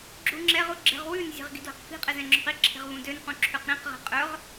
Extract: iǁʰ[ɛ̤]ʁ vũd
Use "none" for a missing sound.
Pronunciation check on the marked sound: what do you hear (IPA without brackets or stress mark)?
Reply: e̤